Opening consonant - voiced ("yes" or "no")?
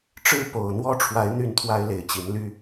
no